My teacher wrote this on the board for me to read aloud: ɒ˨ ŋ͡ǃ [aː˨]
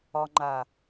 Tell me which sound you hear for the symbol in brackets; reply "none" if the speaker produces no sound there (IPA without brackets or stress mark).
aː˨